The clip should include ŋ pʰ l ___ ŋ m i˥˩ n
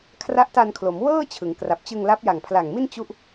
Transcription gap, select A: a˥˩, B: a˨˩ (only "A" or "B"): B